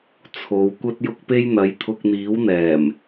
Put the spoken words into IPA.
t͡sʰ o˨˧ w kʷ ɐ˥ t̚ j ʊ˥ k̚ p e˥ j n̪ ɐ˨˧ j t̪ʰ ʊ˧ k̚ n̪ iː˨˥ w n̪ ɛː˨˩ m

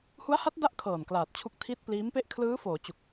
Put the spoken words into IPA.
h u˦˥ a̯ h a˦˥ t̚ d a˦˥ ʔ kʰ ɤː˨˩ n k l aː˨˩ t̚ t͡ɕʰ u˦˥ k̚ tʰ i˦˥ t̚ p l iː˦˥ m p e˥˩ ʔ kʰ l ɯː˦˥ f oː˩˦ t͡ɕ u˨˩ k̚

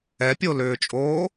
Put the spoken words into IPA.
ɛ pʲ o l ʏː t͡ʃʼ oː

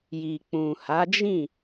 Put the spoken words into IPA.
j i˨ k͡p ũ˨ h a˨˦ d͡ʒ ĩ˦˨

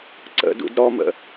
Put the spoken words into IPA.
ǀ ə̰ d ṵ d ɾ ɔ m ə̰

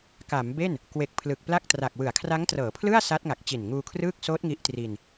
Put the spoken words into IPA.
k a˩˦ m b e˥˩ n | k w e˨˩ k̚ pʰ l ɯ˨˩ k̚ p l a˥˩ k̚ t r a˨˩ k̚ w ɯ˩˦ a̯ kʰ r a˦˥ ŋ t r ɤː˩˦ pʰ l ɯ˥˩ a̯ s a˦˥ t̚ ŋ a˨˩ k̚ t͡ɕ i˨˩ n ŋ uː˧ kʰ r ɯː˥˩ k̚ s oː˦˥ t̚ ŋ i˦˥ ʔ t r i˧ n

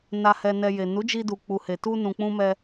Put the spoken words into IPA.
n a˧ h ɛ˧ n ɛ˧ j e˨ n u˨˦ d͡ʒ i˧ d u˨ k͡p u˨ h e˨ t u˧ n ũ˨ k͡p ũ˧ m ɛ˧

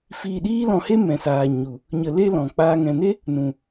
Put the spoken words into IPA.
f iː˧ ɗ iː˦ l ɔ̃˧ h e˦ m ɛ̃˨ s aː˨ ɲ u˨ | ɲ ə˧ l e˦ l ɔ̃˨ k͡p aː˧ ŋ ɛ̃˨ n e˦ | n ũ˨

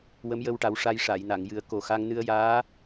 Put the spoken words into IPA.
w ə˧˥ m j ə˧ w ʈ a˨˩˦ w ʂ a˧ j ʂ a˨˩˨ j n a˨˩˨ ŋ j ɨ˨˩˦ ə̯ k o˨˩ x a˧ ŋ n ɨ˧ ə̯ j aː˧˥

